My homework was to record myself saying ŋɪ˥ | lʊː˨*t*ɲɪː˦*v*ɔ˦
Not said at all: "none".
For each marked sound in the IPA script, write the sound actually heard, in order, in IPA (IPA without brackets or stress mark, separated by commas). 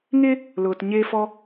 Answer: t, f